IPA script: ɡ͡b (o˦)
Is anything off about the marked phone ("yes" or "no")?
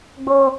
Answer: no